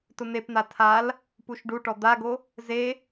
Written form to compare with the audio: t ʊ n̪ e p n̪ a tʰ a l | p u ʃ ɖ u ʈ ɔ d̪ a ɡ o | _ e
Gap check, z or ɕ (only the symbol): z